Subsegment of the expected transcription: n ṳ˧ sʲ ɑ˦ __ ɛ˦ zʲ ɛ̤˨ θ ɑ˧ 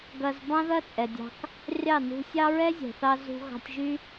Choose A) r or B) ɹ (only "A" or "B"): B